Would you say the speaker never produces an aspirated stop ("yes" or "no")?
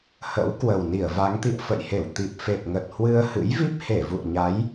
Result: yes